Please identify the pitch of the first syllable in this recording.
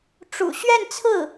low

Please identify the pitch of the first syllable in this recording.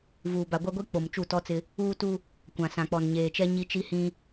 low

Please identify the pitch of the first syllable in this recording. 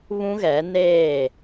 high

